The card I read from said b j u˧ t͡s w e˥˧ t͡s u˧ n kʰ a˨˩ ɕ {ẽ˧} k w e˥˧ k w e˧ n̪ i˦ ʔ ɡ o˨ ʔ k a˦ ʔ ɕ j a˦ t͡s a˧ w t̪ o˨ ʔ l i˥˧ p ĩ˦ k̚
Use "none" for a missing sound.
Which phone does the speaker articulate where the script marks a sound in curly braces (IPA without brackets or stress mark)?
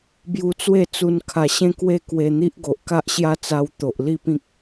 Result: ẽ˥˧